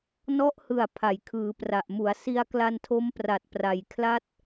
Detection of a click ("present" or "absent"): absent